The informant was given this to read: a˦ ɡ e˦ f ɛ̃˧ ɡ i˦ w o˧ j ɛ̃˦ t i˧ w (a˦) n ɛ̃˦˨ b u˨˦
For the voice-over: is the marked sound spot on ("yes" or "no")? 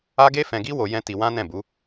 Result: no